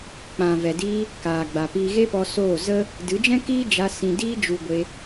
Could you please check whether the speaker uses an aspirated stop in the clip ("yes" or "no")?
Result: no